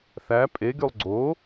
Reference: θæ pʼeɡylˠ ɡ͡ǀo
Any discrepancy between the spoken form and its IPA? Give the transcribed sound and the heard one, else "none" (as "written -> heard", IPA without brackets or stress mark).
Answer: none